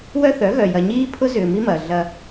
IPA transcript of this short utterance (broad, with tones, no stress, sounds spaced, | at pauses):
w œ˦ θ œ˨˦ ɣ œ˨ j ɐ˨ ɲ iː˦ pʰ ʊ˦ z ʏː˨ m i˦ m ɐː˨ ɮ ɐ˦